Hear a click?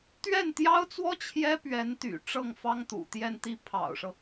no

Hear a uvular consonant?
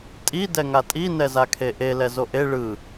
no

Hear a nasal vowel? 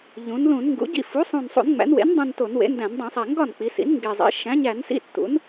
yes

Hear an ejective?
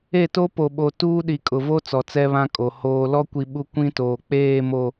yes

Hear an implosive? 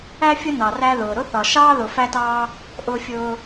no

